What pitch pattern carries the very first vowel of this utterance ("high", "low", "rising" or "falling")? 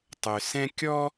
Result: low